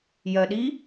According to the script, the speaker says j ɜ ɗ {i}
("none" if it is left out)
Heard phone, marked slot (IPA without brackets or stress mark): i